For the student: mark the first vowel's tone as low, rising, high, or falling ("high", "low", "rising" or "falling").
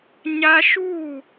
high